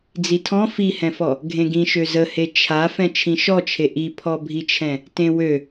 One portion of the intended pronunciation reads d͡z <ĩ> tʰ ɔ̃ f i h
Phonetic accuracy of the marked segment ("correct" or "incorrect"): incorrect